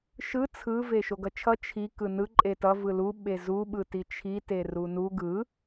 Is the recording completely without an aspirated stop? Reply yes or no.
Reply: no